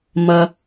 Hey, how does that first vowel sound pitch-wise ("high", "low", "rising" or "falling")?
low